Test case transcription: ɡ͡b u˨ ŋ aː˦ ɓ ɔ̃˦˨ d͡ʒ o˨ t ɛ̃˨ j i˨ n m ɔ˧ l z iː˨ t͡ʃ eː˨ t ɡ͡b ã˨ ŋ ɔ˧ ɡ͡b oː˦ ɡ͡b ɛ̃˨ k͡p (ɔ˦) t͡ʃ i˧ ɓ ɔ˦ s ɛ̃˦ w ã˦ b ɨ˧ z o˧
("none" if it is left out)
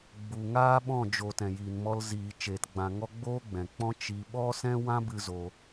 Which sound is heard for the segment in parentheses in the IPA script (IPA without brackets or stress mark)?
ɔ̃˦